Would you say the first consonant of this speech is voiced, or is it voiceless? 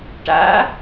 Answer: voiceless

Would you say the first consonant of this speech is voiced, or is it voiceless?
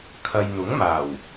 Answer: voiceless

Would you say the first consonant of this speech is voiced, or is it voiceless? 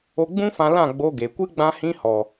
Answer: voiced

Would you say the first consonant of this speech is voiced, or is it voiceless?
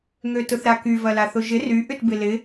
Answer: voiced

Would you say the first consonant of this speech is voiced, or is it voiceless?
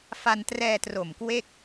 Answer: voiceless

